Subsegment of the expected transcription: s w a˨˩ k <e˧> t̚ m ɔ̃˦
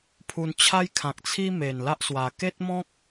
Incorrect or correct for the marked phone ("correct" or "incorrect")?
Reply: incorrect